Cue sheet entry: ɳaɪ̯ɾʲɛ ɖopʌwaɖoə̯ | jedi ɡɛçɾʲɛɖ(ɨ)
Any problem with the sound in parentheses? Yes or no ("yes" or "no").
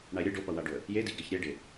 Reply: yes